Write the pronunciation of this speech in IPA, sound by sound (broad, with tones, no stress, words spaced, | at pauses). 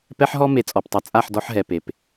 pɛ˦ħɦɔ˦ me˨t͡sʼɔ˨ptˤɛ˨ t͡sʼa˦˨ħ dɔ˦ħɦɛ˨ pe˨p